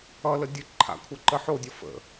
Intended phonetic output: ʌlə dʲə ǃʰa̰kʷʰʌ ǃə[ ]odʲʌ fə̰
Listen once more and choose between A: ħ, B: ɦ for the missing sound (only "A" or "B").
A